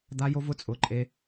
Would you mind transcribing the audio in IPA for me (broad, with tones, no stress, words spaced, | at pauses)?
d̪a˧ jo˧vʊ˧t͡sʼʊ˩˧˩ ǃʼe˧